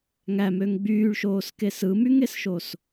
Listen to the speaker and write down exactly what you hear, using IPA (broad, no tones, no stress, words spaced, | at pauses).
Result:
ŋæmøŋ ɡ͡byːɭʃoːskes ɯmyŋesʃos